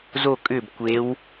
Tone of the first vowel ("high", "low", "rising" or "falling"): falling